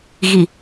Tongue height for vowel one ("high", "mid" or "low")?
high